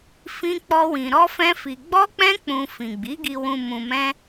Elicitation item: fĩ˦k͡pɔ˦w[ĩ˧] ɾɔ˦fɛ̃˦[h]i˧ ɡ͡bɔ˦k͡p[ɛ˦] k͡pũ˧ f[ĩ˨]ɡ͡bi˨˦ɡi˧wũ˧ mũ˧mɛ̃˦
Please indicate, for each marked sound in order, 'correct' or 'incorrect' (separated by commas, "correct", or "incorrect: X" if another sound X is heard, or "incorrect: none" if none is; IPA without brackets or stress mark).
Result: correct, incorrect: f, incorrect: ɛ̃˦, correct